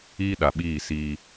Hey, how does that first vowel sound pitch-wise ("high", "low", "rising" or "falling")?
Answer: high